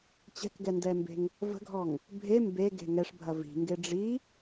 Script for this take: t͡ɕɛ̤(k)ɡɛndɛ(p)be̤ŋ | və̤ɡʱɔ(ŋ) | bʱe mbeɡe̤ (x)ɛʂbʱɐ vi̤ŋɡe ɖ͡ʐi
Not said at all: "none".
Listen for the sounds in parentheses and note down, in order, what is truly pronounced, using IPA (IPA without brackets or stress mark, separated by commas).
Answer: k, m, ŋ, ŋ